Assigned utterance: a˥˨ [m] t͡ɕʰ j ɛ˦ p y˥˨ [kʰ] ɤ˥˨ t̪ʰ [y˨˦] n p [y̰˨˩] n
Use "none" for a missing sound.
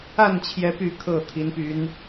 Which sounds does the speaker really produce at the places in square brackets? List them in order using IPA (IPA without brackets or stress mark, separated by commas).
n, kʰ, i˨˦, y˨˦